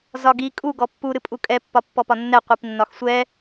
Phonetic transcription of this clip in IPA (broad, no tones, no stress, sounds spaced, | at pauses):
z ɒ ɡ i kʼ u ɡ ɔ pː u ɾ ɨ pʼ u kʼ ɛ pː ɒ pː ɔ p ɒ nː ɛ qʷ i p nː ɒ x sʷ ɛ